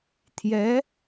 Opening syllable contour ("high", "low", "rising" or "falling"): rising